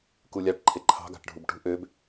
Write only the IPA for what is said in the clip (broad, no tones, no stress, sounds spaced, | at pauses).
k u lʲ ɑ ʈ ǃʰ e ǃʰ ɑ̤ ɡ ɑ̤ ʈ ɖʱ u b ʈ ṳ ʔ ø b